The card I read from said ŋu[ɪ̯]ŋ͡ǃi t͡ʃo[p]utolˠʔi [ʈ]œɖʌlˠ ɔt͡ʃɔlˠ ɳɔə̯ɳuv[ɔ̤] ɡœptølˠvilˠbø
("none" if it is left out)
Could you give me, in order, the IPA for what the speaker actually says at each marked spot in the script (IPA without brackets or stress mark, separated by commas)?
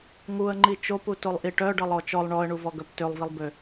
ə̯, p, ʈ, ɔ